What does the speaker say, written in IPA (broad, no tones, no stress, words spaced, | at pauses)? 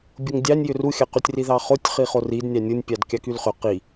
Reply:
bʲoŋdʲɑnʲjʏ ruxʲɑqytʲ riðɑχotʲ χiχorid nʲɑnʲonʲpʲɑdkʲɑ kylχʏ qi